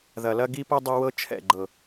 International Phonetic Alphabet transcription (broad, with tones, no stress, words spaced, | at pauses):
ðɐ˨lɐ˦ɡi˦pɤ˦ dˤɐ˦wɤ˦ t͡ʃʰɛ̰˦˨ɡ͡ǃɤ˨